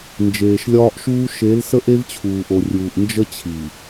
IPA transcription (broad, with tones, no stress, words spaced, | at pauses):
nd͡ʒeː˨ʃlʲɒː˦ʔʃuː˦ ʃe˨˦l sə˦ʔe˦vt͡ɕʰuː˨ʔo˨ rʲuː˨ʔ nd͡ʒə˦t͡ɕʰi˨